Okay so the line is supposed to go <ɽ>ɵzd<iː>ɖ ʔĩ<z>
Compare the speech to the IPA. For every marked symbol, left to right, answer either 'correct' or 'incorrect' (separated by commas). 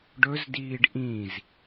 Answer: incorrect, correct, correct